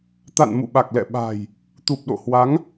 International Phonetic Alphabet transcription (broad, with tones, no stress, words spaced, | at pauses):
t̪a̰˧˨n mṵ˧˨ɓa˨˩k̚lɛ̰˧˨ ɓa̤˨˩j | t̪u˨˩p̚ɗo̰˧˨hwa˨˦ŋ